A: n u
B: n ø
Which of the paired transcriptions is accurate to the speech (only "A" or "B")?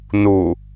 A